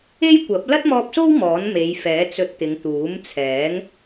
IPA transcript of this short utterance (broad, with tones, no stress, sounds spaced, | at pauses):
e˥ j kʷ ɐ˨˥ p̚ l ɐ˥ t̚ m ɔː˧ p̚ s o˥ w m ɔː˨˥ n m e˨˧ j f ɛː˨˥ t͡s ɵ˧ t̚ t̪ ɪ˨˧ ŋ t̪ uː˨˥ m t͡sʰ ɛː˨˥ ŋ